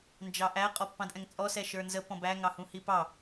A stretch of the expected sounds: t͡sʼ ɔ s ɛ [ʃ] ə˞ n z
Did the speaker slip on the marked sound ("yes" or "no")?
no